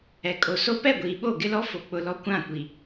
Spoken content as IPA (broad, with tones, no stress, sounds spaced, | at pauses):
ɛ˨ kʼ o˨ s o˦ p ɛ˦˨ ɡʷ iː˨ ɓ o˦˨ ɡ ɪ˦ l ɔ˦ f o˨ k͡p ʊ˦ l ɔ˦ kʷ ã˦˨ kʷ i˨